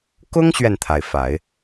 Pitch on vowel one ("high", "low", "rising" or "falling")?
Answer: high